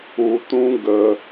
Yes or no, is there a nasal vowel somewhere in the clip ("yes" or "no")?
yes